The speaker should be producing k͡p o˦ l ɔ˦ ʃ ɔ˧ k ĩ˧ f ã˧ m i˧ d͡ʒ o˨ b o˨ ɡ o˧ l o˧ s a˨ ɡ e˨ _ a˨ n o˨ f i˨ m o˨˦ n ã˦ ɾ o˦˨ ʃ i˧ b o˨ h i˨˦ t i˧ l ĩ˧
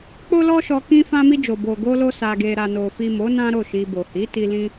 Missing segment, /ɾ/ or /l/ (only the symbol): ɾ